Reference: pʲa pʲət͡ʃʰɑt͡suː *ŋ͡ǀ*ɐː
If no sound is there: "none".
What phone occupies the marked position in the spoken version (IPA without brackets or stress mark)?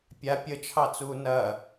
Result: n